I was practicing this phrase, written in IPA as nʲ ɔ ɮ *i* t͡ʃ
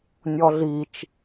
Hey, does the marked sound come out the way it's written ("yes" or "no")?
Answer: yes